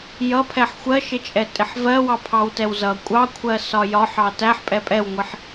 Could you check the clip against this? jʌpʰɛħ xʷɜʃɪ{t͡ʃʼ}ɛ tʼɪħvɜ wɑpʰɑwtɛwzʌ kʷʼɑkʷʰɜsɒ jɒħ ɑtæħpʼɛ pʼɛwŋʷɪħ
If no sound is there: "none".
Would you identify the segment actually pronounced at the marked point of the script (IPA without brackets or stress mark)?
t͡ʃʼ